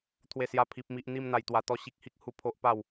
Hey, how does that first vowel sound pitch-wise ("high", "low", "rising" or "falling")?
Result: falling